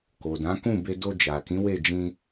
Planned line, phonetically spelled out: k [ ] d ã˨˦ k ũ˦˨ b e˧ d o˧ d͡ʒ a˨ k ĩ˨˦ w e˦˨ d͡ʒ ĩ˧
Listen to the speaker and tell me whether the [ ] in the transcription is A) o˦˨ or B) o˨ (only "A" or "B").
B